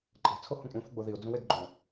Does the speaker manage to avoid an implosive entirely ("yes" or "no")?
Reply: yes